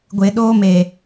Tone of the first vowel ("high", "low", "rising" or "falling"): low